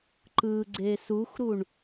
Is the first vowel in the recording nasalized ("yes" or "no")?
no